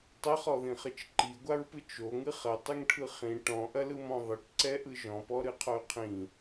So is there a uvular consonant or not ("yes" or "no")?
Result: yes